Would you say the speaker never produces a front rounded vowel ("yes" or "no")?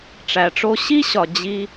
yes